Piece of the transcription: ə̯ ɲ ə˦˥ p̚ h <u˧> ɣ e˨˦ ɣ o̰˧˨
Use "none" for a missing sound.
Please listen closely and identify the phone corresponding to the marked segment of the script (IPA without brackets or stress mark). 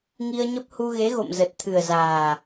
u˧